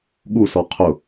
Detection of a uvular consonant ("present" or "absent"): present